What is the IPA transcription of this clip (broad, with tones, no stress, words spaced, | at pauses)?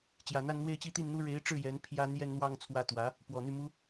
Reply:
t͡ɕjä˨˩n̪a˥˧nn̪we˥˧ɪ̯t͡ɕi˥˧ t̪i˥˩nn̪u˥ ɻe˧˥ɪ̯ʈ͡ʂɻ̩˥˩ jɛ˧˥npʰjä˥ n̪jɛ˥˧nn̪wɑ˥˧ŋ t͡sʰwä˥˩t̪wä˧˥ | pwɔ˨˩n̪y˥˩mu˥